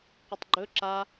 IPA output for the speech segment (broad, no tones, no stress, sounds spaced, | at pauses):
qʷ ə tˤ ɡ͡ǃ ɵ ǁ a